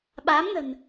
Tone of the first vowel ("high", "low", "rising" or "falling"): rising